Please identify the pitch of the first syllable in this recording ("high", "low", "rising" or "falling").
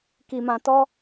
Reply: low